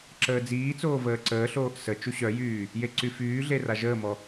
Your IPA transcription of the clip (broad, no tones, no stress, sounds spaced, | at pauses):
ǁ əː d͡z iː t͡s oː v əː ǀ əː ɬ oː ʔ s ə t͡ʃ u ɕ œ j yː | j e ǀ y f yː ɮ e r a ʒ əː m ɔ